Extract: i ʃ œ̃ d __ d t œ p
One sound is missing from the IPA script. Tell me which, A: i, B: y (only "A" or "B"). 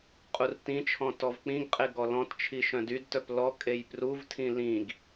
B